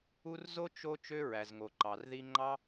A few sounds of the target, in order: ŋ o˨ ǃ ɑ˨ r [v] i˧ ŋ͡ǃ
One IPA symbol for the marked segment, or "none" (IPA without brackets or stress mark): ð